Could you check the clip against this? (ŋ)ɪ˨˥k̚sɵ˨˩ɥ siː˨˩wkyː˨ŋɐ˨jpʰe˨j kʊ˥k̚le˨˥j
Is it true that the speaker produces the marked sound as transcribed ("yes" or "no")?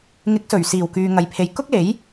yes